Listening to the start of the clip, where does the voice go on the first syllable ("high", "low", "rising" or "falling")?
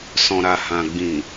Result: low